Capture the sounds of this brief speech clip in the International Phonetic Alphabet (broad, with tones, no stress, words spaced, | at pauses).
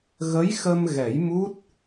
ɣə˧˥jxə˧mɣɛ˨˩˦j mu˦˥t̚